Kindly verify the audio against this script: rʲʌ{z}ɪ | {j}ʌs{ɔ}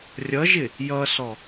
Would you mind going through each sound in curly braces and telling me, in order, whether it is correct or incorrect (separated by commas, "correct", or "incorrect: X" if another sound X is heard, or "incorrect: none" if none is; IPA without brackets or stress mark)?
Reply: incorrect: ʒ, correct, correct